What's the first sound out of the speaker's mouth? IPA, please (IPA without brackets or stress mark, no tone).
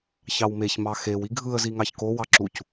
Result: ç